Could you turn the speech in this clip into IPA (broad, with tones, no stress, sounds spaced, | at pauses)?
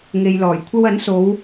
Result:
ŋ e˨ j l ɔː˨˩ j kʷʰ ɐ˥ w ɐ˨˥ n s o˨˧ w